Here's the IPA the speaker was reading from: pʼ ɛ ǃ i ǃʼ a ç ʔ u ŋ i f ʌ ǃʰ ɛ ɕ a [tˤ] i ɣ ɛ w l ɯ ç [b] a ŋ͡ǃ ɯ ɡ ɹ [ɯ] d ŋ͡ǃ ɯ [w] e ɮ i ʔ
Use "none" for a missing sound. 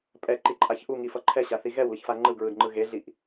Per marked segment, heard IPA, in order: θ, f, ɯ, ɣ

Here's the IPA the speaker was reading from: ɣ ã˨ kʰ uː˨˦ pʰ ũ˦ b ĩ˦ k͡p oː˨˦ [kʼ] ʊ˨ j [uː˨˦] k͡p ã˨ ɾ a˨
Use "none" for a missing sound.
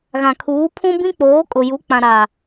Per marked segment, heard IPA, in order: kʼ, u˨˦

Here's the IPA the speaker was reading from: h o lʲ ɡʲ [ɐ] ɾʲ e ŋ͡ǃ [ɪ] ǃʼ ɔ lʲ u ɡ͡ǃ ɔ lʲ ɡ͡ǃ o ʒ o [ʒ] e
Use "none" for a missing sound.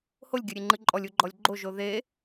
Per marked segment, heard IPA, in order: ɐ, ɨ, ð

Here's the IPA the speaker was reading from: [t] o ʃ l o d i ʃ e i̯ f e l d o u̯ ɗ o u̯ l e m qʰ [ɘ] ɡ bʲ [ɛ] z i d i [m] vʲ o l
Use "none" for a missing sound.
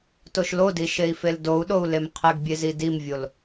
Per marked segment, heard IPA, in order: t, ɘ, e, m

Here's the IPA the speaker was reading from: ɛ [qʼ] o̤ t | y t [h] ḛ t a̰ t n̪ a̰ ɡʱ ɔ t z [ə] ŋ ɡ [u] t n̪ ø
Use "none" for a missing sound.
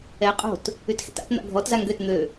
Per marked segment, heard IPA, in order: qʼ, x, a, ø

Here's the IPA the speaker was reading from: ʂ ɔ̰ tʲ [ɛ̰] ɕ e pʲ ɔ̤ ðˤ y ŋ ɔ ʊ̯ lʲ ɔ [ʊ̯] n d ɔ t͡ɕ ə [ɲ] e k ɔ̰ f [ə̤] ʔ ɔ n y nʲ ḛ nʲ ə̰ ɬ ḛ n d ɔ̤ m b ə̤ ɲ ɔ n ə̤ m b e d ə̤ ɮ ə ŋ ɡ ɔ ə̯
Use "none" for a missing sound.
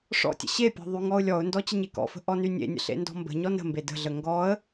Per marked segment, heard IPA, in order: ə̰, ʊ̯, ɲ, ə̤

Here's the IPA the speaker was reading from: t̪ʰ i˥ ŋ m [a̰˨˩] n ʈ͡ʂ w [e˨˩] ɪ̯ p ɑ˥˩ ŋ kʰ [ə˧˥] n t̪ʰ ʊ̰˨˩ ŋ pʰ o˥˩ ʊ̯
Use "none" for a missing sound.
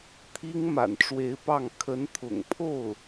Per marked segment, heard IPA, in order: a̰˨˩, e˧˥, ə˧˥

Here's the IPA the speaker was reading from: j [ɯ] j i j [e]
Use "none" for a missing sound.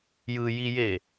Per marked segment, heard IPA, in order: ɯ, e

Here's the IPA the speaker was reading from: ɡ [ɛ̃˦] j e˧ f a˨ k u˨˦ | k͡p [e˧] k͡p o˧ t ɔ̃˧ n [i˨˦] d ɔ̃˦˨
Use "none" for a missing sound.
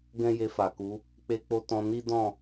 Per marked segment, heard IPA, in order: ɛ̃˦, e˧, i˦

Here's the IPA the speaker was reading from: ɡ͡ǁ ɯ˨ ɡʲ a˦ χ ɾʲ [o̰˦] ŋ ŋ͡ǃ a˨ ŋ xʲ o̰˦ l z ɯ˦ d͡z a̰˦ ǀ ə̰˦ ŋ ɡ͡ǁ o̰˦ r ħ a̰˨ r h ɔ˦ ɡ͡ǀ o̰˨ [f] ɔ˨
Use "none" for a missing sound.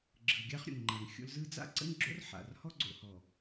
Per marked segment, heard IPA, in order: o̰˨, h

